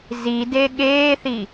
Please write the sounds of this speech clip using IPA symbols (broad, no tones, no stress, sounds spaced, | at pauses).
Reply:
z i d e ɠ eː θ i